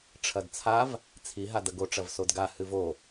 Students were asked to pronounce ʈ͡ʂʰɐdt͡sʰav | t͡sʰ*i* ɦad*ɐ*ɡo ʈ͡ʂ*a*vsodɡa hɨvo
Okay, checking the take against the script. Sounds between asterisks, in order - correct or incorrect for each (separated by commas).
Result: correct, correct, incorrect